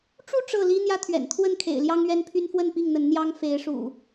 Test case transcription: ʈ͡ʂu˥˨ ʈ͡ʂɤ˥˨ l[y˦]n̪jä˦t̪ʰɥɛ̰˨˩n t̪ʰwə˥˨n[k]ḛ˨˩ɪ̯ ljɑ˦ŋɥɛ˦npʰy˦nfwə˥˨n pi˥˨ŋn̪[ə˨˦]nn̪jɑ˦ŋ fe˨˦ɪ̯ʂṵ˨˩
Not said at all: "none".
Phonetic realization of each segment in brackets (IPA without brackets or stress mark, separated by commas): i˦, kʰ, ə˨˦